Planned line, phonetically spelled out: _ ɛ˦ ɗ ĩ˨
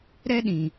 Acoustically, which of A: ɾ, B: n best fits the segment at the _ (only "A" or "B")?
A